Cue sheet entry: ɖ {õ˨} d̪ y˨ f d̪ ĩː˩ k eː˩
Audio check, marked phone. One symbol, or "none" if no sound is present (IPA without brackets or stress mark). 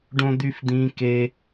õ˨